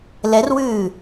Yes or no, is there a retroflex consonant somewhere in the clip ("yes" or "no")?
no